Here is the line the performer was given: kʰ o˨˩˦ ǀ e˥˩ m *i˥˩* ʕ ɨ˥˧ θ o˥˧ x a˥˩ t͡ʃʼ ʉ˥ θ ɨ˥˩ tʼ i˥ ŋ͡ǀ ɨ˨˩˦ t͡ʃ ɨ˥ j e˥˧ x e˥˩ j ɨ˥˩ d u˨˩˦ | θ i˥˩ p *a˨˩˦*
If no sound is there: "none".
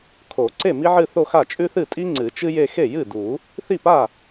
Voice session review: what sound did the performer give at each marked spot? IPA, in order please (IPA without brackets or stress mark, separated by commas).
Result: i˥, a˥˩